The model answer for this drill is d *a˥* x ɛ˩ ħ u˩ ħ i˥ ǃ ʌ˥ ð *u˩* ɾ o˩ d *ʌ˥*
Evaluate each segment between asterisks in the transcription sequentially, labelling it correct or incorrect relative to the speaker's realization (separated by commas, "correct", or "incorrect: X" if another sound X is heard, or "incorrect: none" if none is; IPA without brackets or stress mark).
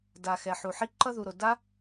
incorrect: a˩, correct, incorrect: a˥